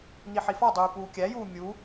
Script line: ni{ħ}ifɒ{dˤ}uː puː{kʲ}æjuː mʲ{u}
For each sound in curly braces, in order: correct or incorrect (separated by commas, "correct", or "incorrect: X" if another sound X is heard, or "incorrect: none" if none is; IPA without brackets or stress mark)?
correct, correct, correct, correct